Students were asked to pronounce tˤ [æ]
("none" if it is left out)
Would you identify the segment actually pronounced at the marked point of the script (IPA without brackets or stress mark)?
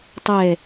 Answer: ɛ